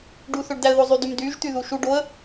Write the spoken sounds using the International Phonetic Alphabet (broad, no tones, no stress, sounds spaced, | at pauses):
ɖ u θ ø ɖ d æ ə̯ ð o zˤ y d y m d y ʒ t̪ y ð u ʃ u ɖ o ə̯